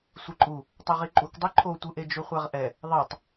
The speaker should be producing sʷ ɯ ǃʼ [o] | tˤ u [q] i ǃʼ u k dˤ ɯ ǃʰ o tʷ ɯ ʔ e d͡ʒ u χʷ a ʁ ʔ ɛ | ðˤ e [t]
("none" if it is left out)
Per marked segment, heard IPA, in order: u, ʁ, tˤ

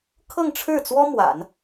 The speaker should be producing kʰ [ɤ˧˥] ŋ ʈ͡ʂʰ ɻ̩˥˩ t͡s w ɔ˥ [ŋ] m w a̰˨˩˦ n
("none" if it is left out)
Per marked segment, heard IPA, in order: ɤ˥˧, none

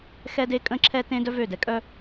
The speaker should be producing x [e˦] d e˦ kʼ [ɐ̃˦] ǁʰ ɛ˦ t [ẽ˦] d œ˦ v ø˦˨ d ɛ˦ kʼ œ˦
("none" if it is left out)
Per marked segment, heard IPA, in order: ɛ˦, ə̃˦, ẽ˦

